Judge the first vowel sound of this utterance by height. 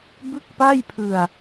high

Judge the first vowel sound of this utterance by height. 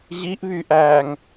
high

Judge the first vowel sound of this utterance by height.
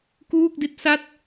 high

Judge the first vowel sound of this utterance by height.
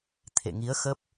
mid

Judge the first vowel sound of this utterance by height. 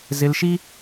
high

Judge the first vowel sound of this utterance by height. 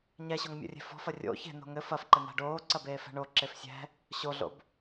mid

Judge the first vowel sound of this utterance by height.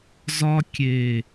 low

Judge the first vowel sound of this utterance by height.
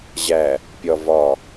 low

